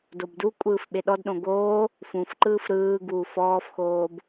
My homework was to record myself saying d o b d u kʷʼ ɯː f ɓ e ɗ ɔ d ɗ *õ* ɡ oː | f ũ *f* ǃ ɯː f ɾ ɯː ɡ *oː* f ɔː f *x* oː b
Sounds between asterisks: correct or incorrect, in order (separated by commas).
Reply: correct, correct, incorrect, correct